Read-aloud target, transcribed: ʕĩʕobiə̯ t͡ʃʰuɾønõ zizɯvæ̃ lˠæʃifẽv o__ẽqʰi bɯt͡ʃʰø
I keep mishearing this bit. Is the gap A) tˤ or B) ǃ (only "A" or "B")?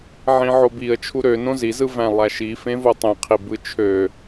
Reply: A